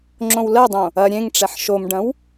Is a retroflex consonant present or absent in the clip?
present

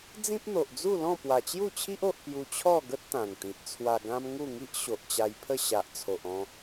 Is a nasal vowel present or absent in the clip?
present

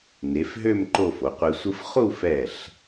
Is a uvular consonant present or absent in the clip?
present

